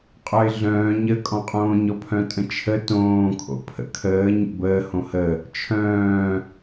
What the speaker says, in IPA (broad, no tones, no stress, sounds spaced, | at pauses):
qʼ œ ɪ̯ ɮ œ̃ː ɲ ə kʼ ɔ̃ qʼ õː ɲ ɔ pʰ œ̃ tʼ ə̃ t͡ʃʰ ə t õː kʰ o̰ pʰ ə̰ kʰ əː ɲ ə̰ b əː h õ h ə | t͡ʃʰ œ̃ː